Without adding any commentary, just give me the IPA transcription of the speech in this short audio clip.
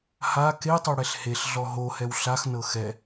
h a k e tˤ o ɽ ɛ ɬ h e ɬ ɮ ɔ ɦ o h ɛ w ɬ a x n ɤ x ɛ

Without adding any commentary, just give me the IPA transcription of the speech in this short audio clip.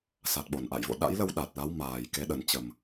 s a˨˩ t̚ ɓ o˧˩ n ʔ a̰˧˨ j v o̰˧˨ ɗ a̰˧˥ j l ə˧ w ɗ a˨˩ t̚ l a˨˦ w m aː˨˩ j k e˨˦ ɗ ə˨˩ n t͡ɕ ə˨˩ m

